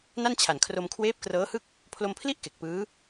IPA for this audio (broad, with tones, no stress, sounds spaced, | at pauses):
n a˥˩ n t͡ɕʰ a˨˩ n kʰ r o˧ m kʰ w eː˦˥ p̚ k r ɤː˦˥ h ɯ˥˩ k̚ | pʰ l o˧ m pʰ l i˥˩ ʔ k e˨˩ k̚ p ɯː˦˥